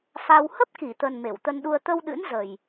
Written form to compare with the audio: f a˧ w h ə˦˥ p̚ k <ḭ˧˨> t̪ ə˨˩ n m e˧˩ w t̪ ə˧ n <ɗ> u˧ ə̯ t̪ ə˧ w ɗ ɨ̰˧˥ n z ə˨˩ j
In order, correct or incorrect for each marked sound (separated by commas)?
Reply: incorrect, correct